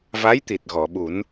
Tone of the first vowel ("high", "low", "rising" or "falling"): rising